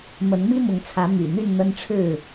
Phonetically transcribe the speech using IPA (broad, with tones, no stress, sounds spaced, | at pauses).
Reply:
m ə˨˦ n m i˦ m ʊ˨˦ ŋ t͡sʰ ä˨˦ m y̰˨˩ n̪ y˥˨ n n̪ ə˦ n ʈ͡ʂʰ ɻ̩˥˨